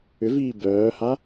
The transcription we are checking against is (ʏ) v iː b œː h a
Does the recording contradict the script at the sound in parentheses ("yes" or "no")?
no